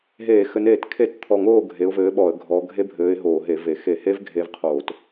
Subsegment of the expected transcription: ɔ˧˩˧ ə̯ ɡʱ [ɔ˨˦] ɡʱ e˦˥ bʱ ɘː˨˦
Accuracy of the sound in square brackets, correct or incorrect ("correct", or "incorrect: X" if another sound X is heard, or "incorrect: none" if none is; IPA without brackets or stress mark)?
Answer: correct